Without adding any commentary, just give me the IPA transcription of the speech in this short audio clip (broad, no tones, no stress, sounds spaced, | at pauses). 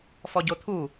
f ɔ ɟ o t̪ʰ u